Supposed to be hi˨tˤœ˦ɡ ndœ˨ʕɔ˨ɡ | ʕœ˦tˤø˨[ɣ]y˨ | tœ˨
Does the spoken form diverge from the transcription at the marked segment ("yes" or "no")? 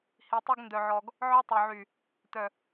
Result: yes